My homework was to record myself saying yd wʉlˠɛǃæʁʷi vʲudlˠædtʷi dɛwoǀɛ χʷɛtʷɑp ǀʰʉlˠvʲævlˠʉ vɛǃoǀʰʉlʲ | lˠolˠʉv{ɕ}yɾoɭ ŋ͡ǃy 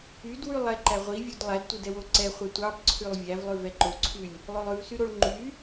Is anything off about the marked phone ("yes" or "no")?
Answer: yes